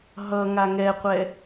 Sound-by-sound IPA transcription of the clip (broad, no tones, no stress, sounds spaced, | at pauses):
ɦ ʌ ŋ a ŋ ɛ qʷ ɛ